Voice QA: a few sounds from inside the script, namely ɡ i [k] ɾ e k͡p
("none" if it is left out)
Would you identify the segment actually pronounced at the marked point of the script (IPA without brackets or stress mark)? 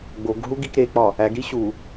k